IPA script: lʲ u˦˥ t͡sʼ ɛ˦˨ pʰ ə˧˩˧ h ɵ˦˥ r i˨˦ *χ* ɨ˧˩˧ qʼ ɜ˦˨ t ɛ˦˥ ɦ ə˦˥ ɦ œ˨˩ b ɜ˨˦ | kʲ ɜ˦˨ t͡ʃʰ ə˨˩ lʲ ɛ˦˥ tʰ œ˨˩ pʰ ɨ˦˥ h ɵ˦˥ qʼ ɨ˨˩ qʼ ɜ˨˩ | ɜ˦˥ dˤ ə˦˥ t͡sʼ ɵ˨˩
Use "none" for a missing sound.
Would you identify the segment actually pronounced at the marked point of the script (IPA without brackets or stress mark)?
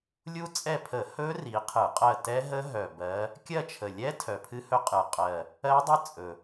qʰ